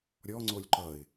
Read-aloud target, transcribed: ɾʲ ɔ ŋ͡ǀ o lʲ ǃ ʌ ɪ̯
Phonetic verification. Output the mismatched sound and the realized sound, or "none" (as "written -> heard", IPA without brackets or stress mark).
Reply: none